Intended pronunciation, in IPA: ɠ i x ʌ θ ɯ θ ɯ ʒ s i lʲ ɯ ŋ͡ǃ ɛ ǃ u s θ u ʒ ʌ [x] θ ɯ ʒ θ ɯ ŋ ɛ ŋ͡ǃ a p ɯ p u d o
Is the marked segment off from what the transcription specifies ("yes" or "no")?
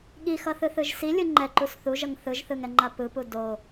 yes